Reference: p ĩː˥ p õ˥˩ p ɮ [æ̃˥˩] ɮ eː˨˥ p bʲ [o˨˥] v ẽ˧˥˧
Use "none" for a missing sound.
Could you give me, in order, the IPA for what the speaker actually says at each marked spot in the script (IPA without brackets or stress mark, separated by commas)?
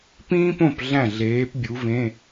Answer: æ̃˥˩, u˨˥